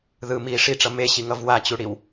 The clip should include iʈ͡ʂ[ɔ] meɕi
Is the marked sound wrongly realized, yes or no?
yes